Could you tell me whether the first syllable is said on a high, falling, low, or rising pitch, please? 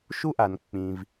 high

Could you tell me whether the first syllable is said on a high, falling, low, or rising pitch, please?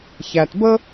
low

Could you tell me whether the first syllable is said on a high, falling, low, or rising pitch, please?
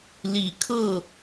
low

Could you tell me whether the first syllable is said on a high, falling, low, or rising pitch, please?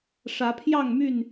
rising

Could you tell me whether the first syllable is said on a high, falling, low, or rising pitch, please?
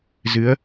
rising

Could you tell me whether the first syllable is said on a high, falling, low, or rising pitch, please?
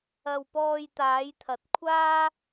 low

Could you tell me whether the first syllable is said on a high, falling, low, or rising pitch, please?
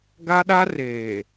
high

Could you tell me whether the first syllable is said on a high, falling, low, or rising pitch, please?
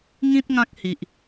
high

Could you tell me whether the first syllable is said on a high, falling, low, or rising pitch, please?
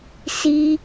high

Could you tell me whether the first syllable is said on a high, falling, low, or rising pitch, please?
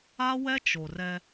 high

